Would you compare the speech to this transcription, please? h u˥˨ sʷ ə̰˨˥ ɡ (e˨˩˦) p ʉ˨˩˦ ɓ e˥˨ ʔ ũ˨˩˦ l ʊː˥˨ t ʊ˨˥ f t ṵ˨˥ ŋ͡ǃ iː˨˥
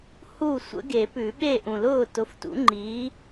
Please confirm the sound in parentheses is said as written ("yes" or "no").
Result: yes